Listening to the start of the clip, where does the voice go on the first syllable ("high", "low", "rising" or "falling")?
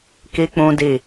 high